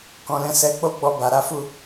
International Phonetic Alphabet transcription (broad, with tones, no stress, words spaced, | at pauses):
kɔ̃˨lɛ̃˧ sɛ˧ k͡po˦ɡ͡bɔ˧ba˨ɾa˨˦ fu˦˨